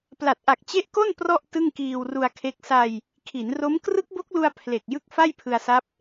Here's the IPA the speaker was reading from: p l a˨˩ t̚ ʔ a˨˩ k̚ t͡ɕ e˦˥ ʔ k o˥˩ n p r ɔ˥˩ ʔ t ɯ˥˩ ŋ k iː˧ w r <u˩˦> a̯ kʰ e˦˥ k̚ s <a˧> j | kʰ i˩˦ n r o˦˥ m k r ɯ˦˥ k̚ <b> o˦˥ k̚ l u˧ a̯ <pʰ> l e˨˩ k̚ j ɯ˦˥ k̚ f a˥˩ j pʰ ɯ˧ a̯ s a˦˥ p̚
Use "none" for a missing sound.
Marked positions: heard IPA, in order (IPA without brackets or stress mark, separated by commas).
u˧, a˧, b, pʰ